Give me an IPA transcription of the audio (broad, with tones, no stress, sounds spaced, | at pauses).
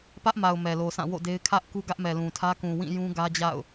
p ä˦ ʔ m a˨ ʊ̯ m ɛ˨ l o˨ s ã˦˨ w o̰˦˨ d e˦ ɪ̯ kʰ ä˦ ʔ k u˦ ɡ ä˦ ʔ m ɛ˨ l ũ˨ tʰ ä˦ k ũ˨ w ĩ˦˨ j ũ˦ ɡ ä˦ d͡ʑ a̰˦˨ ʊ̯